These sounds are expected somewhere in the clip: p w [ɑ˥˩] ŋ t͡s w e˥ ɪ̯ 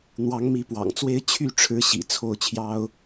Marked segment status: incorrect: ɑ̰˨˩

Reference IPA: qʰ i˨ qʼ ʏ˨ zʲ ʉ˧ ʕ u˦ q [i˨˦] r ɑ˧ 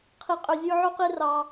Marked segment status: incorrect: i˦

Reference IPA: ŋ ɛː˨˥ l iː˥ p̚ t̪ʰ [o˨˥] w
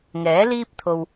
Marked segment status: incorrect: o˧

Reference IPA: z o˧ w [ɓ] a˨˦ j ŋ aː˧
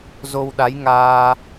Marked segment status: incorrect: ɗ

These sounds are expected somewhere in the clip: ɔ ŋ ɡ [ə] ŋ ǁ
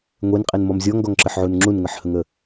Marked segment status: incorrect: ɔ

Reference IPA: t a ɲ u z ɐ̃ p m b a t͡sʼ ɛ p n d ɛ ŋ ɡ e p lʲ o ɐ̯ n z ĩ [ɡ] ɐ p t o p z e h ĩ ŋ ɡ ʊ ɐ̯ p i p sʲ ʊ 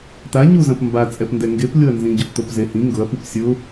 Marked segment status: incorrect: ɟ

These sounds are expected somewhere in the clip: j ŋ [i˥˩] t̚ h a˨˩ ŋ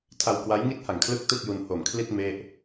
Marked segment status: correct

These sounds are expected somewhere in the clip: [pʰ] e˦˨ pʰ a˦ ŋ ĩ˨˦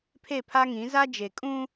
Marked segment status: correct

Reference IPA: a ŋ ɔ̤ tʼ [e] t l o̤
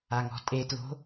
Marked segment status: correct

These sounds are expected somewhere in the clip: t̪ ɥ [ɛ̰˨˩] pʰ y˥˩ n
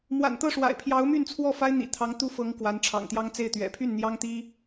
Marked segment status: correct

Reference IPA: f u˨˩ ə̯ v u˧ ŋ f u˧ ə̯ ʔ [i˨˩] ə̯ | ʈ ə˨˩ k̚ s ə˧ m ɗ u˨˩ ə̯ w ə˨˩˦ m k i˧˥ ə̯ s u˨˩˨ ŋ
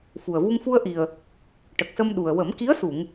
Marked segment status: correct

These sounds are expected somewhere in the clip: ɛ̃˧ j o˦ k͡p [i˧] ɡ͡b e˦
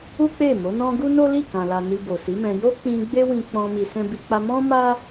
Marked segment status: incorrect: ĩ˧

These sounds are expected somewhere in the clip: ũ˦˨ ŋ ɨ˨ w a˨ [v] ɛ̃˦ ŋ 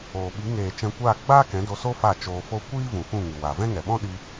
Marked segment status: correct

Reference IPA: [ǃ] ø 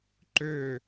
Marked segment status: correct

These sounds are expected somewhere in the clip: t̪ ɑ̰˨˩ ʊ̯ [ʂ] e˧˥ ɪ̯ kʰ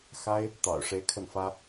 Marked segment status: correct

